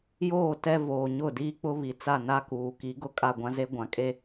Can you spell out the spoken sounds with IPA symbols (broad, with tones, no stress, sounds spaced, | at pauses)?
j oː˦˨ t ɛ˦ v oː˨ ɲ ʊ˦˨ d iː˦ k͡p ʊ˦ β i˨ t͡s a˦˨ n a˦ k uː˨ k i˨˦ ɡ ʊ˦ kʼ a˦˨ ɡʷ ã˦ z e˦ ɡʷ ã˨ kʼ e˦